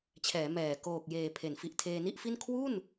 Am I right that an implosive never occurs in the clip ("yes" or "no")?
yes